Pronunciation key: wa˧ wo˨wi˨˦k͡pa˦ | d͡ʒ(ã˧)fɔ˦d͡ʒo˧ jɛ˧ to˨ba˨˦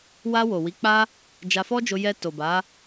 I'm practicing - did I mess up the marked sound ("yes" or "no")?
yes